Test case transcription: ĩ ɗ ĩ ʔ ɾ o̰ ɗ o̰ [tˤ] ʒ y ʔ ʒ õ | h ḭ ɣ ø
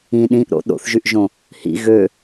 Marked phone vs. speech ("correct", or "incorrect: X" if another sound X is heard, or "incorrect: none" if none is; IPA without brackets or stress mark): incorrect: θ